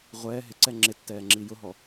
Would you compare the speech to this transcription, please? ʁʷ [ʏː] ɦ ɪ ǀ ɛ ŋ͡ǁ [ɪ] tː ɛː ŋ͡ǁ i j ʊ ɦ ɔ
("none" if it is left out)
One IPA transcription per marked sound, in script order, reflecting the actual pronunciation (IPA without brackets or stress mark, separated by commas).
ɛː, ɪ